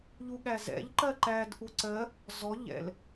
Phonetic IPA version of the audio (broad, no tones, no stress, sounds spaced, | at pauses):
ʎ u ɠ æ z ɛ̰ ʎ ǃ ɜ ǃ æ d ʔ u ǀ ɜ | z ɔ ʎ ɛ̰ l